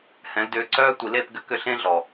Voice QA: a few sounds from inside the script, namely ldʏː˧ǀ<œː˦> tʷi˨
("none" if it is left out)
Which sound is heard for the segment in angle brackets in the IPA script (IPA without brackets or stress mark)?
œː˦